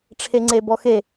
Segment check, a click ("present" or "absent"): present